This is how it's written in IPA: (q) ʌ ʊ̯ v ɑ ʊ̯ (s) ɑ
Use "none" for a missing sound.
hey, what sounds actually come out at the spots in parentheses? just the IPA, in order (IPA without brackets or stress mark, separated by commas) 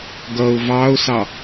ɡ, s